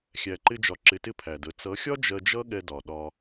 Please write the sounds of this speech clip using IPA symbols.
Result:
xʲ æ˧ ǃ ɪ˦ d͡ʒ ɒ˧ ǁ ɪ˧ t ɪ˦ pʰ æ˨ d ə˨˦ t͡s ʌ˨˦ xʲ ɒ˦ d͡ʒ ɜ˧ d͡ʒ ʌ˦ ɠ ɛ˧ d ɒ˨ ɗ ɒ˧

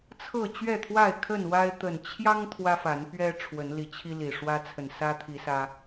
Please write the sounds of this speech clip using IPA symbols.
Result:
t͡sʰ ɤ˥˨ t͡ɕ ɥ ɛ˥˨ t̪ʰ w a˥˨ ɪ̯ kʰ ə˥˨ n w a˦ ɪ̯ t̪ ə˨˩ n t͡ɕʰ j ɑ˦ ŋ t̪ʰ w ä˦ f a˨˦ n p ɥ ɛ˦ ʈ͡ʂʰ w ə˨˦ n l i˨˦ t͡ɕʰ i˦ l i˨˩ ʂ w ä˦ t͡sʰ ə˨ n s ä˦ t̪ʰ i˨˦ s ä˦

